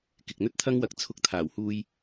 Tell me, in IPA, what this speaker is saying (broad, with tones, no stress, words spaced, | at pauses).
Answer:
kɪ˨k̚n̪ɵ˥t̚t̪ʰɐ˥ŋwɐ˧k̚ t͡sʰʊ˧k̚ t̪ʰaː˨˩whuː˧j